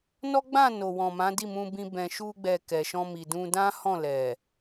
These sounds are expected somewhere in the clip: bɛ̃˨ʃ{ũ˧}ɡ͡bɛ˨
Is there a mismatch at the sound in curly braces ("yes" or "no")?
yes